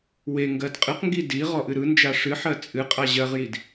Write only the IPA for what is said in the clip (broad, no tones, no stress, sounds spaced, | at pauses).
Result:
w e ŋ ɡ ɜ d qʼ ɨ q ŋ ɡ i d i ʁ ɔ ʔ ɨ ɾ ɯ n d͡ʒ a ʂ ɨ ħ ɜ t͡sʼ ɨ qʼ a ʑ ɜ ʁ j i d